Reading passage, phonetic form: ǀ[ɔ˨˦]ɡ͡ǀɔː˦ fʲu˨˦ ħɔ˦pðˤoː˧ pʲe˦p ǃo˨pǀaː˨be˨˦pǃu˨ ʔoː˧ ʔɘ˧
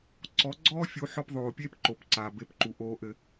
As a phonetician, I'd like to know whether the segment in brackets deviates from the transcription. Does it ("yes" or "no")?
no